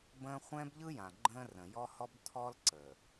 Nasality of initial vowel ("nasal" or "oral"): nasal